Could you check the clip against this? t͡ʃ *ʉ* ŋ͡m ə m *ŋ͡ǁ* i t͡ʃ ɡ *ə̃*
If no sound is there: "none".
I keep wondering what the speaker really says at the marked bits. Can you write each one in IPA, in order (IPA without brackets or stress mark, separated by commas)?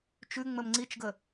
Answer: ʉ, ŋ͡ǀ, ə